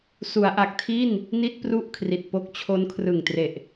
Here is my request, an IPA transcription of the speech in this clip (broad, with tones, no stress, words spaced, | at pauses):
su˩˦a̯ʔa˨˩k̚tʰi˥˩n | ni˥˩t̚pru˥˩ʔkʰri˨˩t̚po˦˥k̚ t͡ɕʰo˦˥nkʰrɯ˨˩ŋtre˨˩ʔ